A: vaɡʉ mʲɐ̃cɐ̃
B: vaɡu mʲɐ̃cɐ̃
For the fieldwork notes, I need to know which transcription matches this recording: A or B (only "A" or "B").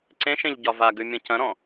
A